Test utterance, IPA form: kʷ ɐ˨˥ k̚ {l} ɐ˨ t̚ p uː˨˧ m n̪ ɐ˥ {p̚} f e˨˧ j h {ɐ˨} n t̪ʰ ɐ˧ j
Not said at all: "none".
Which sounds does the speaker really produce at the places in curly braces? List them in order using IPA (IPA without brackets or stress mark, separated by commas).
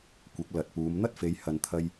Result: l, t̚, ɐ˨